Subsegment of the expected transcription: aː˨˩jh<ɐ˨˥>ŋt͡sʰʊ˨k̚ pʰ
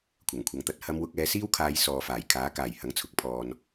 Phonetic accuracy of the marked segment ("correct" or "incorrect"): correct